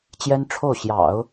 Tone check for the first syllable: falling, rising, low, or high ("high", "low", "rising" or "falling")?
high